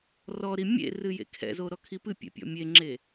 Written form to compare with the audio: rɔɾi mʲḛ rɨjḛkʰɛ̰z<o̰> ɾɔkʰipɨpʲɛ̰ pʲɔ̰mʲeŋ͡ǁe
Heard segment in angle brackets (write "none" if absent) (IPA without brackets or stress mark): o